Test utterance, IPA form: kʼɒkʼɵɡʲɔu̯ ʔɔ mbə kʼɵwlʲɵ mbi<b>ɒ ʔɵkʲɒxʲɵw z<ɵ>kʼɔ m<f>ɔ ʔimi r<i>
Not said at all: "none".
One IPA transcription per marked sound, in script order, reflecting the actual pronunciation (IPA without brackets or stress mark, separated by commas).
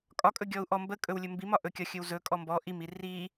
m, ɵ, b, i